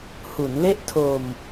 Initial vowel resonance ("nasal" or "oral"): oral